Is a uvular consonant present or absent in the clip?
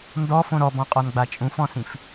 present